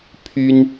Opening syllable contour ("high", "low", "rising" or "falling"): high